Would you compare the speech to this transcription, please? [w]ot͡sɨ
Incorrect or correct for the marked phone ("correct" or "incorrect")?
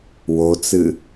correct